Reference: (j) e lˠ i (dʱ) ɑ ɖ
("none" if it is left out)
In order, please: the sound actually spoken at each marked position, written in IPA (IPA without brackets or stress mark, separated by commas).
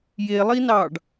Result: j, n